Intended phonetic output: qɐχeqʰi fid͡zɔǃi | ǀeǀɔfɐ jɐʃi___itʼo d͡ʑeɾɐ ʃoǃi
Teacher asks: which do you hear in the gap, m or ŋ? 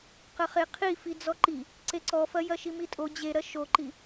m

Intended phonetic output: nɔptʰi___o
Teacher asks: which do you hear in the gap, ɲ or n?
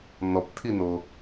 n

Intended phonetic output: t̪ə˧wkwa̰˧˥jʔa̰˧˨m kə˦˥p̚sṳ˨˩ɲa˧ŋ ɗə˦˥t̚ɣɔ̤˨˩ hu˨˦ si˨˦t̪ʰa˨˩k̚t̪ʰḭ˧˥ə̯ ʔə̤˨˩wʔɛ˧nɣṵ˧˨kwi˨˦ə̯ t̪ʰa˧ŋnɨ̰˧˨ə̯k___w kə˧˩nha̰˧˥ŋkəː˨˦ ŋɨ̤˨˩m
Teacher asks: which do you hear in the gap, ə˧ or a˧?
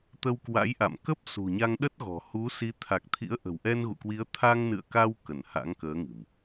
a˧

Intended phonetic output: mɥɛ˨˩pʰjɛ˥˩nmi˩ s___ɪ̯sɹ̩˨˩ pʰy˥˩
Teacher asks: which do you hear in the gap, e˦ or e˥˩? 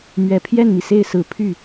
e˥˩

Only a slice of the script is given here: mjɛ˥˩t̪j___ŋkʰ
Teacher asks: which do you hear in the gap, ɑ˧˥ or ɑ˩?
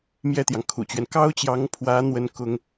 ɑ˩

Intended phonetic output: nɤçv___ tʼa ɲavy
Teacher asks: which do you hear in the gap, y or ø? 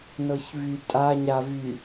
y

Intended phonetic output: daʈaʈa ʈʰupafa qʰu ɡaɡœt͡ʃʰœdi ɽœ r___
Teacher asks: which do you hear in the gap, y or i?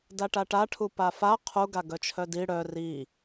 i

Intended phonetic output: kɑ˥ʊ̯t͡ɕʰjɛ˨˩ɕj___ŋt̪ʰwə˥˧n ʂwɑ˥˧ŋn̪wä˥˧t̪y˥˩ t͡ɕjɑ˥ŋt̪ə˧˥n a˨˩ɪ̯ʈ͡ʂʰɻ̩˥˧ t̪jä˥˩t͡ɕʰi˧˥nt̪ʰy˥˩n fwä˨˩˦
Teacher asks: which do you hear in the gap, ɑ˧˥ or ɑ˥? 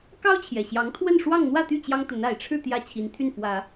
ɑ˧˥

